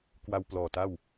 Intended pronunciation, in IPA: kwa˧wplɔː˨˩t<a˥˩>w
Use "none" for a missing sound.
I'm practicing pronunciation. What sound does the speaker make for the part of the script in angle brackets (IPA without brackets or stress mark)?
a˥˩